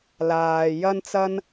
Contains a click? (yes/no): no